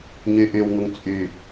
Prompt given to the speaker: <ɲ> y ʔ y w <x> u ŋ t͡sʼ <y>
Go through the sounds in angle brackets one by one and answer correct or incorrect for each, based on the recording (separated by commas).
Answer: correct, incorrect, correct